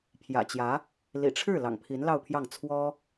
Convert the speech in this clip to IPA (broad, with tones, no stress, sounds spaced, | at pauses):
pʰ j ä̰˨˩ t͡ɕ j ä˧˥ | l ḭ˨˩ ʈ͡ʂʰ ɻ̩˥˩ l ɑ̰˨˩ ŋ pʰ i˧˥ n l ɑ˥˧ ʊ̯ pʰ j ɑ˥˩ ŋ t͡sʰ w ɔ˥